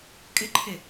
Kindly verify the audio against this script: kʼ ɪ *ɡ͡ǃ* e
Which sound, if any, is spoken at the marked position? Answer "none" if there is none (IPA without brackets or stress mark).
ǃʰ